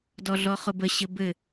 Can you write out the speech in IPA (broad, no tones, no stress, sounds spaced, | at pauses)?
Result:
d ɔ ɮ ɔ χ ʊ b ə ɕ ɘ b ɘ